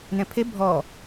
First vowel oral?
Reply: no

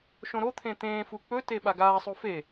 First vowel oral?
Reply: no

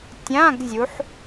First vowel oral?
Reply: no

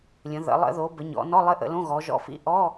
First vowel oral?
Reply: no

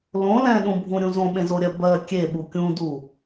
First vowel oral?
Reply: no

